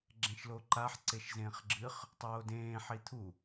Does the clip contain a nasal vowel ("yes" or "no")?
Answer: yes